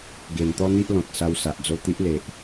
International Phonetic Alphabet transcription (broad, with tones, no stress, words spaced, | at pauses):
ɡe˨˩nt̪ɔ˦n̪i˦ʔ lɔ̃˨t̚sa˧wsa˨ʔ d͡zo˧t̪i˦ʔ le˨ʔ